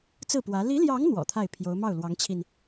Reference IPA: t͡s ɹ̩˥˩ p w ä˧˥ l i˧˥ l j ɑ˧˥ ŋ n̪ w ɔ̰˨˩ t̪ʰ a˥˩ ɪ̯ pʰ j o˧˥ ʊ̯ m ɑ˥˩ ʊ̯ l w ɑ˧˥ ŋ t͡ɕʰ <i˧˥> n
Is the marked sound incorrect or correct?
incorrect: i˧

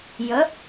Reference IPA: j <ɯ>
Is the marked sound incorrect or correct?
incorrect: ə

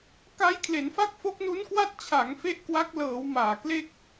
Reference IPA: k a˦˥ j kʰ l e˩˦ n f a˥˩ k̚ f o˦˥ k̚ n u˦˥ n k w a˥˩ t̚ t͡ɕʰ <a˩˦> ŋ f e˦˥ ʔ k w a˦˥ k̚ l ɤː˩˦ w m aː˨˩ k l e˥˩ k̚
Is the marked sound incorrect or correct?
correct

